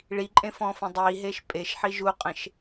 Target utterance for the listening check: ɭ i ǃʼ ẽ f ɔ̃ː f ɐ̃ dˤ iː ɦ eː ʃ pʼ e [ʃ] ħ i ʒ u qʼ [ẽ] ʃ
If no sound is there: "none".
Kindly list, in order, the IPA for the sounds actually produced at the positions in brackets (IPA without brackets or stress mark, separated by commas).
ʃ, ẽ